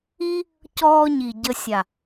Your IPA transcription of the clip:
i˦ | c ɔː˧ ɲ i˨ ɟ ə˧ sʲ a˨

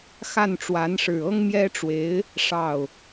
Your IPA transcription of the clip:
x a˥˩ n ʈ͡ʂ w a˧˥ n ʂ ɻ̩˨˩ ɤ˥ ŋ m j ɛ˥ ʈ͡ʂ w e˧˥ ɪ̯ | ʂ ɑ˥˩ ʊ̯

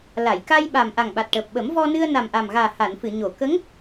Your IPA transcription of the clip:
l a˨˩˨ j k a˧ j ɓ a˨˩ m ʔ a˨˩ ŋ ɓ a˨˩ t̚ ʈ əː˨˩ p̚ ɓ ə˨˩˦ m v ɔ˧ n ɨ˧ ə̯ n a˨˩ m ʔ a˨˩ m ɣ aː˨˩ h a˨˩˨ n f ɨ˨˩˨ ɲ o˨˩˨ k ə˧˥ ŋ

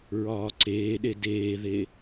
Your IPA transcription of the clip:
ɹ ɒː ǀ eː ɗ e d eː ð e

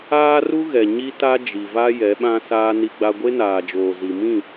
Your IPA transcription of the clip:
aː˦ r u˦ ɣ ɛ˨ ɲ i˦ t a˦ d͡ʒ i˨ v a˦ j ɛ˨˦ ɓ ã˦ s aː˦ n i˦ ɡ͡b a˦ ɡʷ e˦ n aː˨ d͡ʒ oː˨ z i˨ m ĩ˦˨

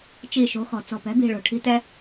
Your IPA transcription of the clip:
t͡ʃ i˧˩ ʃ o̤˩˥ x ɔ̤˩ t͡s ɔ̤˧˩ p ɛ̤˩˥ b i̤˧˩ ɭ o̤˧˩ ʈʰ i̤˦˥ t ɛ˦˥

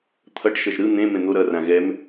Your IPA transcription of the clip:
t̪ʰ ʌ ʈ ʃ ʌ ʒ ɾ ɯ n̪ ẽ m ẽ n̪ o ɾ ʌ r ã ɣ ɛ m

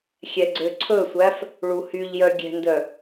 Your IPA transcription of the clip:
xʲ ɛ ɡ͡ǀ ø ǀʰ ɵ sʷ æ f | ɭ u h y ʎ j œ ɡʲ ɛ̤ n d œ

